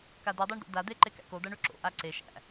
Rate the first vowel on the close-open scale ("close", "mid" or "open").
open